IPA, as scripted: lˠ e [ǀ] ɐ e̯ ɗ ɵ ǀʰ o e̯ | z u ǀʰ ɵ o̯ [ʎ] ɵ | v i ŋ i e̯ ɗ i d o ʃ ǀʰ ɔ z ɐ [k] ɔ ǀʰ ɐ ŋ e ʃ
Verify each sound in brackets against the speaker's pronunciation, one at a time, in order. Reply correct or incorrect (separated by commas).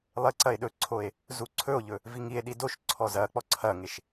correct, correct, incorrect